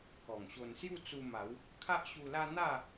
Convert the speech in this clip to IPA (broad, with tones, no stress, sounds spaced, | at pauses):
k ɔ˨˩ ŋ ɕ o˧ n s j u˥˧ t͡s u˧ m a˨˦ w | kʰ a˦ ʔ ɕ u˧ l a˦ n̪ a˥˧